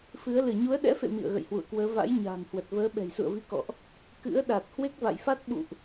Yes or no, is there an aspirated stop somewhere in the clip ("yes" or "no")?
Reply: no